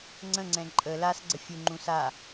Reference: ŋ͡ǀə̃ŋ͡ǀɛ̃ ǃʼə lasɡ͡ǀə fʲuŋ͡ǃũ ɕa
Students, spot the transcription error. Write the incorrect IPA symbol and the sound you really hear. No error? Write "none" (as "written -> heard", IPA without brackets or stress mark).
ɕ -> s